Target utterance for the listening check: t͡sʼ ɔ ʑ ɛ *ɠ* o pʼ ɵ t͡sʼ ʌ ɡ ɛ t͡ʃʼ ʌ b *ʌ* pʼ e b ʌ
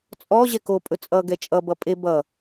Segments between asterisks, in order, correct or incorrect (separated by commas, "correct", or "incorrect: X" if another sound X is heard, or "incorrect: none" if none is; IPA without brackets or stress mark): incorrect: k, correct